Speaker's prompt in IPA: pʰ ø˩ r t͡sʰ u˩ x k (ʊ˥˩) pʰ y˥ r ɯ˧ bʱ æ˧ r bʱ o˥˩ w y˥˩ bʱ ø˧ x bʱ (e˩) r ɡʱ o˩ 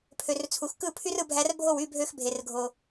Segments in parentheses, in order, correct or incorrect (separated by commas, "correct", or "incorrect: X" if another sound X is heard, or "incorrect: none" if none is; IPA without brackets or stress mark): incorrect: ɯ˥˩, correct